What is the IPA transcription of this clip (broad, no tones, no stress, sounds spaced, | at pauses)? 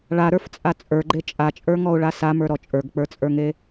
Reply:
ɭ a ɾ ə˞ f t͡sʼ a t͡sʼ ə˞ ɡ͡ǃ e t͡ʃʼ a t͡ʃʼ ə˞ ŋ ɔ ʊ̯ ɭ a s a m ə˞ ɾ ɔ t͡ʃʼ ə˞ ɡ k͡p ə˞ t͡sʼ ə˞ ŋ e